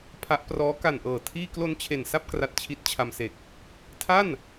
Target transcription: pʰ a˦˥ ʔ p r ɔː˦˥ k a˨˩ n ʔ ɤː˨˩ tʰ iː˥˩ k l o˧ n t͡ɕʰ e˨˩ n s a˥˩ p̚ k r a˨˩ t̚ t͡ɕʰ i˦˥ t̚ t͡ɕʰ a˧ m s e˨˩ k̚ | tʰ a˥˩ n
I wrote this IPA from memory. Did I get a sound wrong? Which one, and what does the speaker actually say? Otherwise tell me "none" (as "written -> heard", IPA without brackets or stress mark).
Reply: none